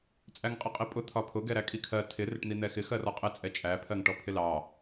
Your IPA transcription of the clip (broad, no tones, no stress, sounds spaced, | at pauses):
t͡sʼ æ ŋ qʼ ɪ qʼ i pʼ ʊ t̪ʰ ɒ pʰ ʊ ɡ ɛ ɾ æ kʼ i kʰ ɜ tʰ ɪ r ɪ ʈ n̪ i n̪ ɛ x ɪ x ɜ r ɔ qʼ ɪ t͡sʼ ɛ t͡ʃʼ æ pʰ ɜ ŋ ʈ ɔ pʰ ɪ l ɑ